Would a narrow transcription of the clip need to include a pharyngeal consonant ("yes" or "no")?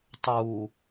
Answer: no